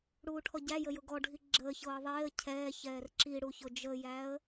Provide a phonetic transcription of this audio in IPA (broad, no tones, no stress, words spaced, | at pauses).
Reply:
ɽuːʈʰɔɟæjə jʊɡɔɖʱi ɡ͡ǁəːçɤː ðˤeːə̯ cʰɛːçɛːr ǁi ɽuçʊd͡ʒəjæə̯